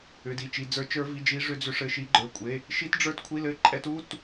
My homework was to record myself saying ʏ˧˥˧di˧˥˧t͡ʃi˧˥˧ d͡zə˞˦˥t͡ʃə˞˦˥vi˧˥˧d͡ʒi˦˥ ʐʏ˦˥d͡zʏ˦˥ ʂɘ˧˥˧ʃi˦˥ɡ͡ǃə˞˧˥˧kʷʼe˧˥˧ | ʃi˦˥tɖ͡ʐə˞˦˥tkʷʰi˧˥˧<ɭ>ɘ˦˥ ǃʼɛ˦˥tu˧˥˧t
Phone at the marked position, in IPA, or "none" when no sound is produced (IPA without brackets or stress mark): l